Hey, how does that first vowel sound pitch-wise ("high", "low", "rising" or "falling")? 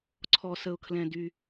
low